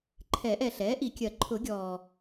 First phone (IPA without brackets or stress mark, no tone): ǃʰ